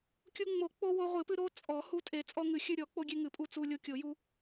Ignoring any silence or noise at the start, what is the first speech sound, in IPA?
kʲ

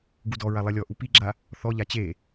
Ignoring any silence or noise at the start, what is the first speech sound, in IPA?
ɡ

